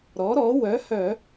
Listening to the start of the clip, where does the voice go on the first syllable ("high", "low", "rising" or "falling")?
rising